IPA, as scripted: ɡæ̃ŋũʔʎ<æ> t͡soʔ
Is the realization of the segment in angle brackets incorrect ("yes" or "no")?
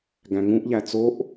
no